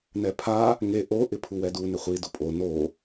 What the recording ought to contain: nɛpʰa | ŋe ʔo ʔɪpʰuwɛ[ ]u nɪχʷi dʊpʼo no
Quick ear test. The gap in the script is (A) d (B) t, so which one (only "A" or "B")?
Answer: A